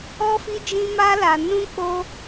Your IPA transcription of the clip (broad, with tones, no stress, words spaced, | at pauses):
ɔ˦fi˦d͡ʒĩ˦ ma˦la˧ nũ˦k͡po˦